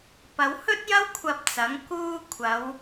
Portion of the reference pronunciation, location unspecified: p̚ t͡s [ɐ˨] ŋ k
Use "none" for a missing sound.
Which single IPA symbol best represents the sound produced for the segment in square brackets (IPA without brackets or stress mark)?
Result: ɐ˨˥